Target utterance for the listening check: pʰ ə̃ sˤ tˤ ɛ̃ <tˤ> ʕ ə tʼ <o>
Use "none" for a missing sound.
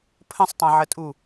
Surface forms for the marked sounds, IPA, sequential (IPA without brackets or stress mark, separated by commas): none, u